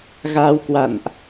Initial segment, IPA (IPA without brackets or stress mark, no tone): ɣ